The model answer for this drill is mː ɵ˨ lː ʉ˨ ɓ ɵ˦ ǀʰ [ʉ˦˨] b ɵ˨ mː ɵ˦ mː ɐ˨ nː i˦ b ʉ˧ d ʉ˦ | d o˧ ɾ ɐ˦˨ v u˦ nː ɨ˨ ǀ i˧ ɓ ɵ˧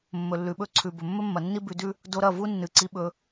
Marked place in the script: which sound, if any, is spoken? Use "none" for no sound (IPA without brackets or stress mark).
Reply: ʉ˨